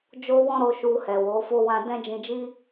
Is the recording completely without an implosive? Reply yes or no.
yes